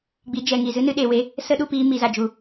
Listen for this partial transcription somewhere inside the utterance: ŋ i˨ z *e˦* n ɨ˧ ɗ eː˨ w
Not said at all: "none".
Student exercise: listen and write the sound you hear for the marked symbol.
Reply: ɨ˦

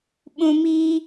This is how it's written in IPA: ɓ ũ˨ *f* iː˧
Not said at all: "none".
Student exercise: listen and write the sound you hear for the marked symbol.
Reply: m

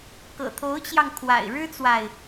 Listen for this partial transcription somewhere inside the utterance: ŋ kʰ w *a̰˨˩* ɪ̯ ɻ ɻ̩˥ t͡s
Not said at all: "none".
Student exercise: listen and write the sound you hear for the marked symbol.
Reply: a̰˨˩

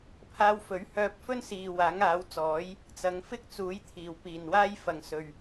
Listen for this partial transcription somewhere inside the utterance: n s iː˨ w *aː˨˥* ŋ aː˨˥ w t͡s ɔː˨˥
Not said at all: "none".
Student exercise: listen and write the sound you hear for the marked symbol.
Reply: aː˨˥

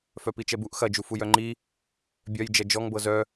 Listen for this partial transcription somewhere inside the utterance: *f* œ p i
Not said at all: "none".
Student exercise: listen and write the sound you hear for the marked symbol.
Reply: f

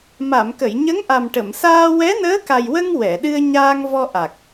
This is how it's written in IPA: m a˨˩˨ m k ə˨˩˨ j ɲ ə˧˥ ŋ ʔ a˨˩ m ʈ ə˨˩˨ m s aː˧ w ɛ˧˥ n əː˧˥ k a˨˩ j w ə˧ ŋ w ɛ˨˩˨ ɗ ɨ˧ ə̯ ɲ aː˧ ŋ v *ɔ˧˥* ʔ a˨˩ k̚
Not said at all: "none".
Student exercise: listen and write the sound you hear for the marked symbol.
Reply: ɔ˧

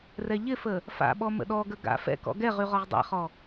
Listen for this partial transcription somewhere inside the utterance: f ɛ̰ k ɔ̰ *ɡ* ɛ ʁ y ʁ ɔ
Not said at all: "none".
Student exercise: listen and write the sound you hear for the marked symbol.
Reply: ɡ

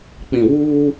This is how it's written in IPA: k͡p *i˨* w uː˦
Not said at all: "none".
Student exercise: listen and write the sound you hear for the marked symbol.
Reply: ĩ˨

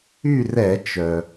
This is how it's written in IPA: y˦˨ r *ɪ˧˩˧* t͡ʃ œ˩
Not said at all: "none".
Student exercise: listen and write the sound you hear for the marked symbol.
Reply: ɛ˧˩˧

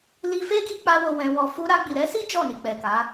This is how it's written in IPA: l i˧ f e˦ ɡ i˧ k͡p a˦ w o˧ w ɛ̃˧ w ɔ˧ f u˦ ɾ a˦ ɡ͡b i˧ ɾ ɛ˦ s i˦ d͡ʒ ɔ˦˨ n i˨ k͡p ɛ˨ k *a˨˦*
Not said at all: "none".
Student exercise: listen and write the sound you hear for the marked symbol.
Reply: a˨˦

